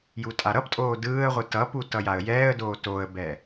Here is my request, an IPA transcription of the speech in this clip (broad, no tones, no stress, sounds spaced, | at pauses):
j u tʼ a ɾ ʌ p tʼ oː d ɯː ə̯ ʁʷ ɯ t ʌ p u t ʌ j a ə̯ j ɛː ə̯ d oː t o ə̯ b ɛ